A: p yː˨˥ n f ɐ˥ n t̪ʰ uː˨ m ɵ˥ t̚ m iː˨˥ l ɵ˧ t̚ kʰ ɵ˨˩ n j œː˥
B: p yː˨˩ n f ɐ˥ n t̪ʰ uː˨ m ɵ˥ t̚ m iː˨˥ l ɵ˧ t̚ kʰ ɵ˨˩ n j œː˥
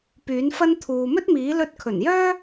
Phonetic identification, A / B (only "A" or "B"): A